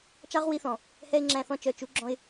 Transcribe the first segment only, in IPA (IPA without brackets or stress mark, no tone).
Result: t͡ʃ